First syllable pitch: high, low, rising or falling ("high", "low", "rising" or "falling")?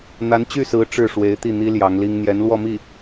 rising